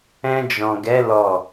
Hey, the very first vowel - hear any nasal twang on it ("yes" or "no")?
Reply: yes